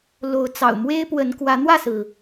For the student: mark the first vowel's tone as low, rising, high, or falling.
rising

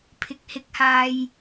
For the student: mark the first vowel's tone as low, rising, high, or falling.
rising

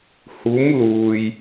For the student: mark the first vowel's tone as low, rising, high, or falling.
rising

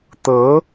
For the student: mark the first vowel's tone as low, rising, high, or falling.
rising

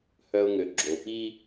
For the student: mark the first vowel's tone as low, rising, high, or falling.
high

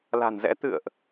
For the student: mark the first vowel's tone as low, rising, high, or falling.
low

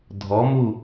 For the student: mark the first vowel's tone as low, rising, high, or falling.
rising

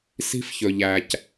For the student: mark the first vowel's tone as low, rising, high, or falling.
high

